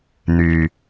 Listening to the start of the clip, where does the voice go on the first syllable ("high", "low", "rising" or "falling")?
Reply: low